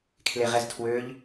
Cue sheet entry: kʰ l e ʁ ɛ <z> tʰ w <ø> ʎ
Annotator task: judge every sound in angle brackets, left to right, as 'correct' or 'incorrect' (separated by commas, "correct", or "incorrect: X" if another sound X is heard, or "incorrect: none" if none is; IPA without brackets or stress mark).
correct, correct